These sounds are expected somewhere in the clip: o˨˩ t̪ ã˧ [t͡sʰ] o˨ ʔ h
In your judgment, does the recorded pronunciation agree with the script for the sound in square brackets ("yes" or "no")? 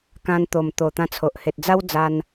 yes